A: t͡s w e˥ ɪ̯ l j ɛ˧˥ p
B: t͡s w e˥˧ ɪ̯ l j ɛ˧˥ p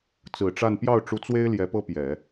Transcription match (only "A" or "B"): A